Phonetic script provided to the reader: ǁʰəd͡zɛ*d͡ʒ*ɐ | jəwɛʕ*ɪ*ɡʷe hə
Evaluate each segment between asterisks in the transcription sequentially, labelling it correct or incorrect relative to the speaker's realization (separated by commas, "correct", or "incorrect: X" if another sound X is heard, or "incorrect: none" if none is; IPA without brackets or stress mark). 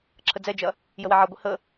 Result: correct, incorrect: ɛ